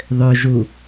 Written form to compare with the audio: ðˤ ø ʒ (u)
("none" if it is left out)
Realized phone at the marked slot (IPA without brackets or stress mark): u